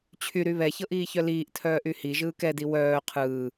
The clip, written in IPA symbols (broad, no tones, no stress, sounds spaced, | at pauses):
t͡ɕʰ y ɾ y β ɛ ç ɤ ʔ iː ç œ l iː ʔ tʰ œː ʔ y h i ʒ ɯː k ɛ d i w œː qʰ ɯː